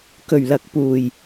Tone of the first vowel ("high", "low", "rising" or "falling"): low